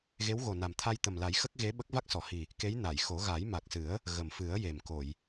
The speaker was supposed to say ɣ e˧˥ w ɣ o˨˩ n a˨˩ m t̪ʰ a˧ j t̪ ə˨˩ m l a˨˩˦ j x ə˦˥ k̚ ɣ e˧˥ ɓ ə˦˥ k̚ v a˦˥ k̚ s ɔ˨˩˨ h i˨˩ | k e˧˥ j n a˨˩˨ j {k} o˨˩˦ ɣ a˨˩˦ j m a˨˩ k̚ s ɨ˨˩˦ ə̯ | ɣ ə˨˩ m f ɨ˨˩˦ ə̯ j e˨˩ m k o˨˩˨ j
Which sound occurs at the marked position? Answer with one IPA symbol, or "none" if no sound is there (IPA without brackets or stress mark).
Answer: x